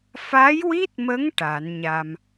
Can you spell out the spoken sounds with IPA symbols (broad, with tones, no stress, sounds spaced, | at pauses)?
f a˧˥ j w i˦˥ t̚ m ə˧˥ ŋ ʈ a˨˩˦ n ɲ a˧ m